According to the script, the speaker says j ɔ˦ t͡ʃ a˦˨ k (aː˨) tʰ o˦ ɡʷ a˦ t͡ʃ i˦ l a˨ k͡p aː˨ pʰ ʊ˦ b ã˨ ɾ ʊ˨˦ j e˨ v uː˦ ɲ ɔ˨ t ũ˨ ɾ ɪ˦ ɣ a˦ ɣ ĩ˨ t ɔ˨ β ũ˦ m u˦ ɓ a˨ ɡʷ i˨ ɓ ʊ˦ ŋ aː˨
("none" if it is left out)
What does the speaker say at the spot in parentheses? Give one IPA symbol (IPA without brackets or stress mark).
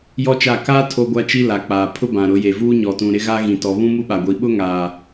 aː˦